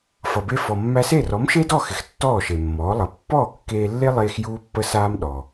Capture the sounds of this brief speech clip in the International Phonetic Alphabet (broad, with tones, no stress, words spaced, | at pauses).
fʌ˩be˧ fɔ˩mːæ˧se˥˩ rɔ˩˥mʃe˥dɔ˥˩xɪ˩x tːɔː˥˩ʃe˩mːɔː˩˥lˠʌ˩˥ pːɔː˥˩kːeː˧lːe˥lˠeː˧x juː˥pːə˥saː˥m ɗɔ˩